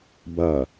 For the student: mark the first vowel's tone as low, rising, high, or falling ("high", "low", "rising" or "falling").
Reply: low